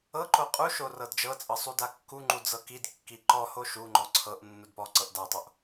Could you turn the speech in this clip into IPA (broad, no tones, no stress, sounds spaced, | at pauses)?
ɤ ǃ o qʼ u ʃ o r ɤ d d͡ʒ ɤ t͡sʼ ɤ sˤ u d a kː u ŋ͡ǃ u d͡z ɤ k i d kː i ǃ ɔ h o ʃ u ŋ͡ǃ ɔ ǀʰ ɤ ʔ nː u d p ɔ ǀ ɤ ʔ d a tˤ o ʔ